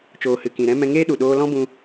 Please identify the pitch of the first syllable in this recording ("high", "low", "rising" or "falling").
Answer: low